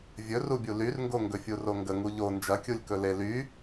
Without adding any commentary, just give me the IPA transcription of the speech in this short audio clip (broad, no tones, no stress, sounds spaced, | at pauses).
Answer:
vʲ ɵ r u bʲ u l y r ŋ ɡ o ŋ ɡ ɵ fʲ u r o ŋ ɡ ə ŋ u ʎ o n d͡ʒ ɐ kʲ u lʲ k ɵ l e l y